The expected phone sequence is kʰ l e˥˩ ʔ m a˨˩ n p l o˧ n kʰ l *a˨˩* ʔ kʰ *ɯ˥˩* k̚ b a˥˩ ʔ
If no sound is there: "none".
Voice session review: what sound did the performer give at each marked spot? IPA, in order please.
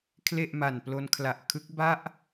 a˨˩, ɯ˦˥

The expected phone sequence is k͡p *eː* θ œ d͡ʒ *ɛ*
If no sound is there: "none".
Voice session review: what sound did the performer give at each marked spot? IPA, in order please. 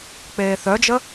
eː, ə

